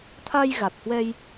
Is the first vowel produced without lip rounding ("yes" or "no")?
yes